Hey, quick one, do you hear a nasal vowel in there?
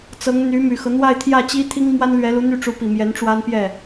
no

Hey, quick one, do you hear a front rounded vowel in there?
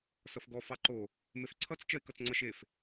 no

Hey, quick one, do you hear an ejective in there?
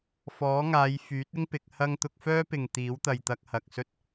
no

